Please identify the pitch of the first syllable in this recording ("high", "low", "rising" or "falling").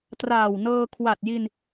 low